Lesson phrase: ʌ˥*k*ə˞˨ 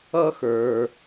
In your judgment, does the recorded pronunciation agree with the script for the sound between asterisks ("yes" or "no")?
no